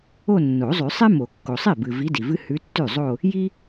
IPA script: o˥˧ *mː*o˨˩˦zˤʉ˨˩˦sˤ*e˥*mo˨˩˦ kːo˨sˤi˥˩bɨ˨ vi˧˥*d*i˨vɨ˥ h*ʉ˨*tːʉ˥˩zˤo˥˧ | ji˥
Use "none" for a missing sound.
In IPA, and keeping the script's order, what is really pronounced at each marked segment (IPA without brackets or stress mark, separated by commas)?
nː, e˥, d, ʉ˧˥